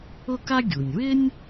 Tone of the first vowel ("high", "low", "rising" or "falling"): high